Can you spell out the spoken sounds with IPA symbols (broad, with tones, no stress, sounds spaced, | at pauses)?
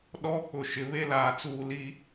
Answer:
ɗ ɔ˦ k͡p ʊ˨ ʃ ɪ˨ β e˦ l aː˨ t͡s uː˨ l i˦